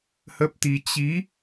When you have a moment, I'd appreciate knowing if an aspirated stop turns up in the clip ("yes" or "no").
no